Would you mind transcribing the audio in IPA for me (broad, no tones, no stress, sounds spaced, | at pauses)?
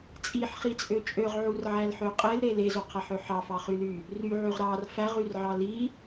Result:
t͡sʼ i ħ χ i t͡sʼ ø t͡ʃʼ ø ʁ ʕ u r ʕ æ l ħ ø qʼ e l ɾ e l e z o qʰ æ ħ ø ħ ɑ f ɑ χ y l y | r y ʕ y ʁ ɾ ɑ r f æ ʁ y r ʕ ɑ l i